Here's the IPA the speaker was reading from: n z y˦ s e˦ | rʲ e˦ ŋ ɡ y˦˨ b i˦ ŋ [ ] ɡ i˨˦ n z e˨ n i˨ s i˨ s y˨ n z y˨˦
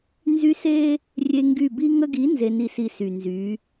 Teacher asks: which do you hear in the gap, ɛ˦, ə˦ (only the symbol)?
ə˦